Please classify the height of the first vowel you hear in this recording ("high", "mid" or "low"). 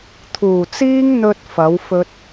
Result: high